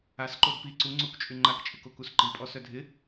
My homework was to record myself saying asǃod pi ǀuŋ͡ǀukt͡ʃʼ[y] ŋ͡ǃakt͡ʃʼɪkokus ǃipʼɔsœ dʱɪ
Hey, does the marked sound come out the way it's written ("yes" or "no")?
yes